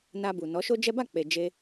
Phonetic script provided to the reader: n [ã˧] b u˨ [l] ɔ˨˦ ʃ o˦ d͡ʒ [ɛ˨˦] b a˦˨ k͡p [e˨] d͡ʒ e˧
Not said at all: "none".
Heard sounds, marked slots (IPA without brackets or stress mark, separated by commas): a˧, n, ɛ˦, e˨